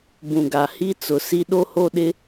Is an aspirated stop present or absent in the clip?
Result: absent